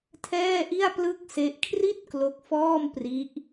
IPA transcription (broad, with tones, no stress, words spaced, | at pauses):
tʰɛː˥˩ʔi˥˩a̯ plɯ˥˩k̚se˦˥ʔ kʰri˥˩t̚ klo˦˥k̚fɔː˥˩mpri˦˥ʔ